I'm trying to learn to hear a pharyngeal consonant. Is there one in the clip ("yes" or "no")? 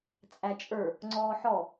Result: yes